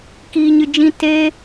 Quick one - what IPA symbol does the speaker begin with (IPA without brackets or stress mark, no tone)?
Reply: k